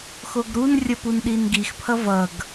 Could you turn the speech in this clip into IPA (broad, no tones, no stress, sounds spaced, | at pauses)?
x o ɡ ɾ u n rʲ ʌ p u n ɗ i n ɡ i x pʰ ʌ v ʌ ɡ